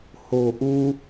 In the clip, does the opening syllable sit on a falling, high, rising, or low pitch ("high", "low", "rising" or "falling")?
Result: low